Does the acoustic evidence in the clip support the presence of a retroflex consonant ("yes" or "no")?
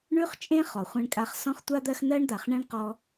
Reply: yes